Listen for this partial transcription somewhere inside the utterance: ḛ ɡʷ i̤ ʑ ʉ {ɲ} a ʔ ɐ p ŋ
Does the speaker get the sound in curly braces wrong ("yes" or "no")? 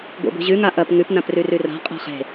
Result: yes